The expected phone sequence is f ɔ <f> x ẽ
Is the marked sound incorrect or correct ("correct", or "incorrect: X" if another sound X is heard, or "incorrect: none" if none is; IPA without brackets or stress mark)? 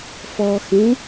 incorrect: none